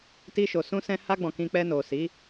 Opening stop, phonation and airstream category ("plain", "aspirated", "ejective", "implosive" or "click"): plain